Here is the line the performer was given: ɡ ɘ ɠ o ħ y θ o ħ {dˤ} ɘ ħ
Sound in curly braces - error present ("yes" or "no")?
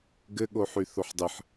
no